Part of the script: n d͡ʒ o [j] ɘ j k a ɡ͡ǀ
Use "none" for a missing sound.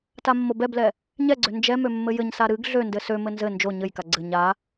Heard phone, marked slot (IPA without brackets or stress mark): ɲ